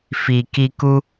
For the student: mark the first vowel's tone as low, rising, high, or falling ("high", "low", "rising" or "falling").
low